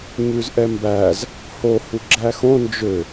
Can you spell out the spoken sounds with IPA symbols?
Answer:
ɲ ʉ z ʔ ɛ m b æ z | h o h u ɡ͡ǁ æ x õ n d͡ʒ ø

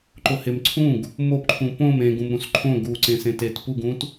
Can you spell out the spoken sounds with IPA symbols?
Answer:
ǃ ʊ h ɪ m ǀʰ ũ ɡ | m o p ǃʰ ũ p õ m ẽ ɡ ũ m ɾ ũ s ǃʰ õ ɡ u ǀ ẽ s ẽ t e t p u ɡ ũ t

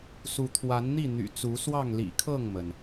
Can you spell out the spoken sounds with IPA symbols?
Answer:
s u˨˦ t̪ʰ w a˨˦ n n̪ i˥˨ n̪ y̰˨˩ t͡s u˨˦ s w ɑ˥˨ ŋ l ḭ˨˩ kʰ ɤ˥˨ ŋ m ə˩ n

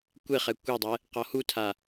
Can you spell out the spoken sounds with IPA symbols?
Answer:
kʷ e χ ɛ kʷ e dˤ ɛ | q ɔ h u tʰ a

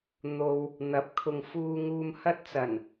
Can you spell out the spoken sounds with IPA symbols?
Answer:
n̪ o˨ w | n̪ ɐ˨˥ p̚ kʰ ʊ˨ ŋ f uː˨ ŋ uː˨ m h ɐ˧ t̚ t͡s ɐ˨˩ n

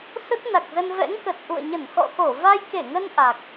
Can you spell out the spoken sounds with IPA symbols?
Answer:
s ə˦˥ t̚ n a˨˩ k̚ z ə˧ n v ɛ̰˧˥ ŋ k ə˨˩ t̚ ʔ ṵ˧˨ ə̯ ɲ ə˧˩ n x ɔ̰˧˨ x o˧˩ v a˧ j k e˧˩ ŋ ə˧ n ʔ a˨˩ k̚

